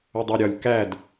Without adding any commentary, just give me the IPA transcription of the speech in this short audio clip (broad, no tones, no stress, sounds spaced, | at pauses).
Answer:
ʊ dˤ ɜ ɾʲ ɒ lʲ k æ d